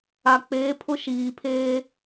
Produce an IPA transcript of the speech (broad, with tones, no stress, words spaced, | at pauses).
a˨k͡peː˨˦ pʰʊ˦ʃiː˨pʰeː˦